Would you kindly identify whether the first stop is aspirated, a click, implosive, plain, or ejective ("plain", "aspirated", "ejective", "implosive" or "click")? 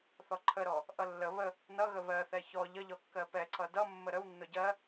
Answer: click